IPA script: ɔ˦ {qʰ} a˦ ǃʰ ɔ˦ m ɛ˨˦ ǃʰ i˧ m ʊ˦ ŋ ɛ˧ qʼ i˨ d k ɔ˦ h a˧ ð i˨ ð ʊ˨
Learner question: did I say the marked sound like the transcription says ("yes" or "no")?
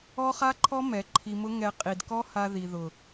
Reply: no